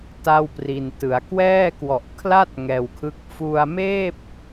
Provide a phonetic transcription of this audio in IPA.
t a˥˩ w p r i˧ n t ɯ˩˦ a̯ k w ɛː˥˩ k w ɔ˨˩ ʔ kʰ l a˥˩ t̚ ŋ ɛː˧ w kʰ ɯ˦˥ k̚ f u˧ a̯ m eː˥˩ p̚

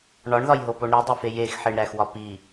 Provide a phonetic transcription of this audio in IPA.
ɳ ɒ ɳ ð ɒ j ɦ o p o ɳ ɾ i dˤ e f e j e x ħ e ɳ ɾ æ x w ɒ p i

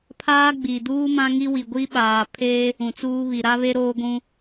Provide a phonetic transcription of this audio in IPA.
pʰ aː˦ ɡ͡b i˨ d uː˦ m ã˦ ŋ i˦ w i˨ ɡʷ i˦ ɓ aː˨ pʰ e˦ | ũ˨ t͡s uː˦ β i˨ ɾ a˦ β e˦ ɾ oː˦ ɡʷ ũ˦

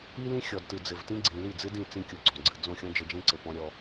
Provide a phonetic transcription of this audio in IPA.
i˦ l ĩ˦ xʲ ɔ˨ d t ɨ˨ d͡z ɘ˨ v t ĩ˦ ɡ͡ǀ ĩ˨ l i˦˨ d͡z ɨ˦ d ĩ˦˨ t͡s ĩ˦ kʲ o˨ ɡ͡ǀ ɔ̃˨ ɡ͡ǀ ɨ˨ d͡z õ˦˨ xʲ ɔ̃˦ d͡ʒ ɘ˨ d͡ʒ ẽ˦ ǀ ɘ˨ p ɔ̃˦ ɾʲ ɔ˦

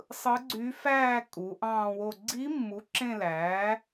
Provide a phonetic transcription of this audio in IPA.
sˤ ɯ˧˥ ɡ͡ǀ y˧˥ f æː˥˧ kʼ u˩˥ ʔ ɑ̃ː˥˧ w o˥˧ ɡ͡ǀ i˧˥ mː u˩˥ ǁ ẽ˥˧ l æː˩˥

